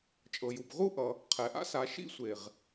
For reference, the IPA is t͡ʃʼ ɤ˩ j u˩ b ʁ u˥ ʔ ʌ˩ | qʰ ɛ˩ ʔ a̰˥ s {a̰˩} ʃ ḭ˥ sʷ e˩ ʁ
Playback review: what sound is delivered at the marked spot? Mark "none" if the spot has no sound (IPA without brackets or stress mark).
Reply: a˩